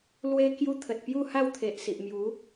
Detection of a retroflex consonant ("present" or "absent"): absent